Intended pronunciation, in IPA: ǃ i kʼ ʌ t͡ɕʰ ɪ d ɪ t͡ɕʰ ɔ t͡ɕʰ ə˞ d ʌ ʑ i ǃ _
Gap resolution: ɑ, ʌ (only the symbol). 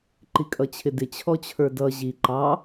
ɑ